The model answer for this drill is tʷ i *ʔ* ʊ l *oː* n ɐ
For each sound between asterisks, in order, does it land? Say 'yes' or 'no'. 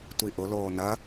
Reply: yes, yes

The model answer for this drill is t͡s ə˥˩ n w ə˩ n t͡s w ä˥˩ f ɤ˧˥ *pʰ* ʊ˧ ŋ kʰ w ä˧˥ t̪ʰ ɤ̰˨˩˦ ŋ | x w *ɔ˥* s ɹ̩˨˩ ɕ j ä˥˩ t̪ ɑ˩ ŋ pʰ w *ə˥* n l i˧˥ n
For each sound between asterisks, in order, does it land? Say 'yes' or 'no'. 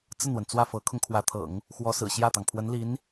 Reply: no, no, no

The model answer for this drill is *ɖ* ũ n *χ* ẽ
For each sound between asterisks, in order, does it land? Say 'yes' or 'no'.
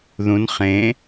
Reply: no, yes

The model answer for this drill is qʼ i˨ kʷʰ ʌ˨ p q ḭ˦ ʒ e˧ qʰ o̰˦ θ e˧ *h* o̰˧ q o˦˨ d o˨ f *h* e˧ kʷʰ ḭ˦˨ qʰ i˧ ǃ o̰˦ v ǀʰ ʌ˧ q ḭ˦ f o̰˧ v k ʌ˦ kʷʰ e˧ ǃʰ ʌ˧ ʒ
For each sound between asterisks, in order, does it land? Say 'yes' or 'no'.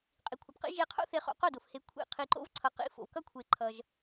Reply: no, yes

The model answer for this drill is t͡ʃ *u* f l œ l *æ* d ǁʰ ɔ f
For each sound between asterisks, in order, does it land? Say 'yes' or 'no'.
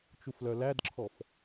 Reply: yes, yes

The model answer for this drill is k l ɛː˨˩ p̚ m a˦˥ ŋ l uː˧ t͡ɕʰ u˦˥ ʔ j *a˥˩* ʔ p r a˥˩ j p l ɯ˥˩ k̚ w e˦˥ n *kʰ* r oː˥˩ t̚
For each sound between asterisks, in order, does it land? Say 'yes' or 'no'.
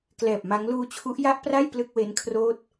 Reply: yes, yes

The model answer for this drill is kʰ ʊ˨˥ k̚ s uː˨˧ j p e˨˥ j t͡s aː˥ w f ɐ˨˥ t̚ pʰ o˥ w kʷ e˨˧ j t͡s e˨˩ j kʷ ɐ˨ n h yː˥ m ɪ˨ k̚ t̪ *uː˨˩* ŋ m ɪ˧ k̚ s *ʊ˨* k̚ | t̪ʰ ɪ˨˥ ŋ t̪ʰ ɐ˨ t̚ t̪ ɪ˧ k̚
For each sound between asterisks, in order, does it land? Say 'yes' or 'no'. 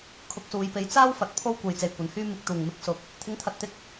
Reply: yes, yes

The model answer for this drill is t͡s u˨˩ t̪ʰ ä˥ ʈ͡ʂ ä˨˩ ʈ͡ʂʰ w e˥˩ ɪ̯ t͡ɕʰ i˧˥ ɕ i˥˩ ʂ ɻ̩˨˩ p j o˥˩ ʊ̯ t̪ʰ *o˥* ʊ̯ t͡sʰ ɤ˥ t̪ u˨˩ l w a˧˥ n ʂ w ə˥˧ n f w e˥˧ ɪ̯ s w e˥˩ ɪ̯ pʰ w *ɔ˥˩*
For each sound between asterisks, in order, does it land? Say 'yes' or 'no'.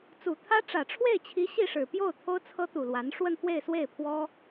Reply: yes, no

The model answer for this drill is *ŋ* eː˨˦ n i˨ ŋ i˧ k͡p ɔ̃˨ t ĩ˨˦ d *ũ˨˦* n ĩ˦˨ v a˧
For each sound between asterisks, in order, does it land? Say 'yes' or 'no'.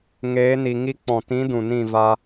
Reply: yes, no

